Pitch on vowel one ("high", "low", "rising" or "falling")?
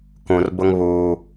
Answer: low